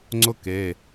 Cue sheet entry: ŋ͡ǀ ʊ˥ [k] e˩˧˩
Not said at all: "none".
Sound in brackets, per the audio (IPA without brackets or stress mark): k